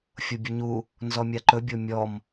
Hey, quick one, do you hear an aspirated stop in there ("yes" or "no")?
no